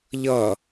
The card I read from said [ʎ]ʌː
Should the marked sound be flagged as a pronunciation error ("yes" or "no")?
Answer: no